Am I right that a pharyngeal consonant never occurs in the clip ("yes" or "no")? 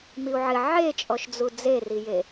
no